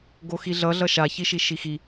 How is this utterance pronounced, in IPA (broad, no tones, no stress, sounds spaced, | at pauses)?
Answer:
ɡ o x i ɮ ʌ ɮ ʌ ʃ a ç i ʃ i ʃ i x i